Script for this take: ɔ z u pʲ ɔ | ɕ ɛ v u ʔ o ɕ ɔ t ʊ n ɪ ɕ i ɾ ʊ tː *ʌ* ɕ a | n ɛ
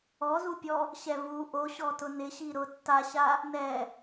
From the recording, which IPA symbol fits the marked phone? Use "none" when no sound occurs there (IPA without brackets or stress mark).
a